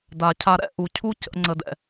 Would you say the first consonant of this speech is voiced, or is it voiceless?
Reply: voiced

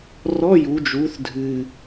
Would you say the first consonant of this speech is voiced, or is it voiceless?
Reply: voiced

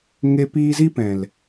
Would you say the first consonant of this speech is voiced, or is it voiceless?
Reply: voiced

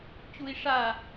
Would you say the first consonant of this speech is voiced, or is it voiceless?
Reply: voiceless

